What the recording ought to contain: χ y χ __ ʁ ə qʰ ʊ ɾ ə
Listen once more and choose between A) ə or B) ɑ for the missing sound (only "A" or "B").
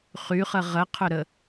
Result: A